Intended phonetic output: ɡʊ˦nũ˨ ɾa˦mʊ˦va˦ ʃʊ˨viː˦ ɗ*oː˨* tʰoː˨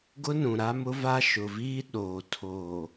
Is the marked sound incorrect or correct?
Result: correct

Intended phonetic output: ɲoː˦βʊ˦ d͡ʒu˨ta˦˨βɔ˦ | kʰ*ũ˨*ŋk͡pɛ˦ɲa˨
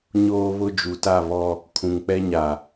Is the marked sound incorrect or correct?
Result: correct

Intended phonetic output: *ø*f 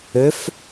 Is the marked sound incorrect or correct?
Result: correct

